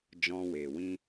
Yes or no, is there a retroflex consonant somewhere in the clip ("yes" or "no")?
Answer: no